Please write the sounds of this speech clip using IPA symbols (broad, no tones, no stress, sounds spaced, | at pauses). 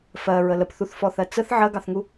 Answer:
f ɜ ɹ ə l ə p θ u θ f ɔ θ ɜ t͡s ə θ ʕ ɜ ɡ ɑ θ ŋ u